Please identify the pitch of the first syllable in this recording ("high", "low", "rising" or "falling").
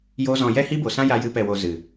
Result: high